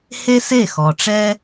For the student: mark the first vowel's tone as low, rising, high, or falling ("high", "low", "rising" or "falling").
high